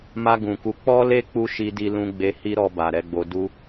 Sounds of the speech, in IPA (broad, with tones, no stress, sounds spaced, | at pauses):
m a˧ ɡ ũ˨ k u˨˦ k͡p ɔ˦ l e˦ k͡p u˦ ʃ i˧ d i˧ l ũ˧ ɡ͡b e˧ h i˦ ɾ ɔ˧ b a˨ ɾ ɛ˨˦ ɡ͡b o˧ d u˦